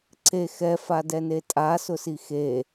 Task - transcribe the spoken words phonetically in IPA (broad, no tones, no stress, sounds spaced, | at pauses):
ǀ e x ɛ f a d ɛ n e tʼ a s ʊ s i x e